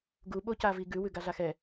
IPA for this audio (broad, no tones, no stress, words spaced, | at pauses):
ɡuɓo caviɡʉ wʉɡaɮaxɛ